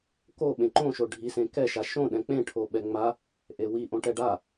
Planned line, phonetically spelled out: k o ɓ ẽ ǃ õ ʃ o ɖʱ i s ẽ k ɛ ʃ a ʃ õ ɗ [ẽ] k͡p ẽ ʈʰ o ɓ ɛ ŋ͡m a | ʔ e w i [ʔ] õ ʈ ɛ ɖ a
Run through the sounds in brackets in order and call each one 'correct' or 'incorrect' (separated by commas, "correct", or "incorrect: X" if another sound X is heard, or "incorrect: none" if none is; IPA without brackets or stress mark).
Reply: incorrect: ɛ̃, correct